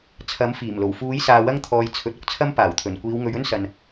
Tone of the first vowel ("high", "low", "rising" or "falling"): rising